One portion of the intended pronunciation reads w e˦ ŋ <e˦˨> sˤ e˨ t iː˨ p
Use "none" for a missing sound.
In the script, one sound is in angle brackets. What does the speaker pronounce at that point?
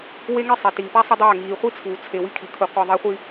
e˦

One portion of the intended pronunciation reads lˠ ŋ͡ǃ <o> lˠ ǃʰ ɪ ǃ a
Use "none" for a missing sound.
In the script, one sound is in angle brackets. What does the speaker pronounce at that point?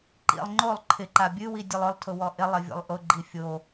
o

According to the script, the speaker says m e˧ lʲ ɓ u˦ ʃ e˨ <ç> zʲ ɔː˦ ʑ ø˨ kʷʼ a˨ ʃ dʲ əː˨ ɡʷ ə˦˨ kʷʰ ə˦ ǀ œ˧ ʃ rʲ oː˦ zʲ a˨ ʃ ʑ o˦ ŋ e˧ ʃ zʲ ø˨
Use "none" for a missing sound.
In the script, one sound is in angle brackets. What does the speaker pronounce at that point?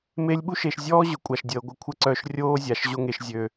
ʃ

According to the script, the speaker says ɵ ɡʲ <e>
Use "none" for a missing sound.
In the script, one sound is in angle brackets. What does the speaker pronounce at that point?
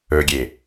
e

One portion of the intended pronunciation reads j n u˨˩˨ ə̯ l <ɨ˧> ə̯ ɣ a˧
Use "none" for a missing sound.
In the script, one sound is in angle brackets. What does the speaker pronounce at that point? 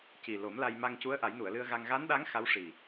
ɨ˧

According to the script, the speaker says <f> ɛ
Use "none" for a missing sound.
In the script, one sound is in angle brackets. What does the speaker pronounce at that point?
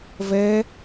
v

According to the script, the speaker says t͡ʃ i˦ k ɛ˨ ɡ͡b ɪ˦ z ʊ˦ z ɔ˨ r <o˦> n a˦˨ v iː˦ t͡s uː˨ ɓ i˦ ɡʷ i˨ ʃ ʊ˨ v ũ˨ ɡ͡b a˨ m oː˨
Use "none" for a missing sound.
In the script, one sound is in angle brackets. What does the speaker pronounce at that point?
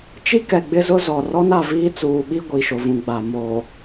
ɔ˦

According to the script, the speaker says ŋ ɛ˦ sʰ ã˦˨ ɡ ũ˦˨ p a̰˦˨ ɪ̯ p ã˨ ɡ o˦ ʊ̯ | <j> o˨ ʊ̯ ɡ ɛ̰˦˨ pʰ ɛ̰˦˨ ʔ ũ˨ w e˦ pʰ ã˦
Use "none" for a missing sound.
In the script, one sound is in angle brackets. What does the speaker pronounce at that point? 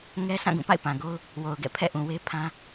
w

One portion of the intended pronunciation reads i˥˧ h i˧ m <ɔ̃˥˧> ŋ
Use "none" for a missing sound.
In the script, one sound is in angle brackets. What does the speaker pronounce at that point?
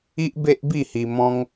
ɔ̃˦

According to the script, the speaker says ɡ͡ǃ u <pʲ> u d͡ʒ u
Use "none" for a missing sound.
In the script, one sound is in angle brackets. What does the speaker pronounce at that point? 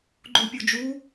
pʲ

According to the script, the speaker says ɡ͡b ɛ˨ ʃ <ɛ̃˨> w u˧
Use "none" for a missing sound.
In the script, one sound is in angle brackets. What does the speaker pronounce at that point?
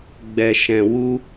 ɛ̃˨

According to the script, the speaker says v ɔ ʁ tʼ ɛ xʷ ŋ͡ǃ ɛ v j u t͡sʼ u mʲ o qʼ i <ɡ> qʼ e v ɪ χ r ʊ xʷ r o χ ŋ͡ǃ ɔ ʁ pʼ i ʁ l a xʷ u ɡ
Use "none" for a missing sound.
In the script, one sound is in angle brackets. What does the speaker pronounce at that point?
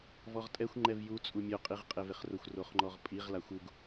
ʁ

